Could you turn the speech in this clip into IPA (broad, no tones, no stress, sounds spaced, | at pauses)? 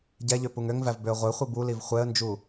ɟ ɛ ʎ ø p u ŋ ø ŋ v æ v b ø ə̯ ʁʷ ɛ χʷ i b u l i v χʷ ɛ ə̯ n d͡ʒ u